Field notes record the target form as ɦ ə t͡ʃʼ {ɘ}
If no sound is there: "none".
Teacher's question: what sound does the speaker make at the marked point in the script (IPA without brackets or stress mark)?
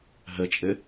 ɘ